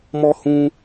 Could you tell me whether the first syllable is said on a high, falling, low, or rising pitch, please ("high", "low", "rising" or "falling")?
high